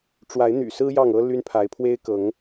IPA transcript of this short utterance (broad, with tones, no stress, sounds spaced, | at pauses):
ʈ͡ʂ w a˨˦ ɪ̯ n̪ y̰˨˩ s ɹ̩˦ j ɑ˥˨ ŋ ɤ˦ l y˦ n pʰ a˨˦ ɪ̯ pʰ w e˦ ɪ̯ k ɤ˨˦ ŋ